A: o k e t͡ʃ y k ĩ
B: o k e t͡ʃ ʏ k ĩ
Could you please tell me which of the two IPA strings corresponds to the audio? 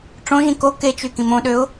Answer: A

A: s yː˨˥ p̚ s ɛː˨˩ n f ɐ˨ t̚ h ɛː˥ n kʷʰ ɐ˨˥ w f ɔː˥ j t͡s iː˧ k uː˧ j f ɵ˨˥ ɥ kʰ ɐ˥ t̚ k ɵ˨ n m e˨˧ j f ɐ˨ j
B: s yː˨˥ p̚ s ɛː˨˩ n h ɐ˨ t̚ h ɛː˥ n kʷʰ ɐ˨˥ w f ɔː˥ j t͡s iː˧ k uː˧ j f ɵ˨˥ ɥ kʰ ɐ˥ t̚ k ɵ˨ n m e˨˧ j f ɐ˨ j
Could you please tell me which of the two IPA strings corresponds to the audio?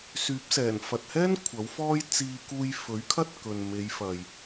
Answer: A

